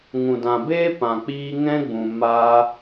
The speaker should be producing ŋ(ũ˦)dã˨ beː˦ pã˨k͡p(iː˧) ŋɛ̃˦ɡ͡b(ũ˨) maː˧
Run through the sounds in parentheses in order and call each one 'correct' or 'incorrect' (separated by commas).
incorrect, correct, correct